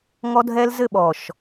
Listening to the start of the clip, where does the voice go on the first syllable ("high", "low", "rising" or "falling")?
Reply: high